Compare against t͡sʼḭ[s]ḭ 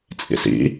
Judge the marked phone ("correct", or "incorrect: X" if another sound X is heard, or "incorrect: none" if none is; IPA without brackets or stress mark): correct